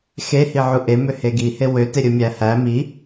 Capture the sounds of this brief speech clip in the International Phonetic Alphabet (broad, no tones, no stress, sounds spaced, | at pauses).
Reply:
x e h i ʕ u ʔ e m ø h e ɡ i h e w ø t e ɾʲ ɯ mʲ æ h æ m i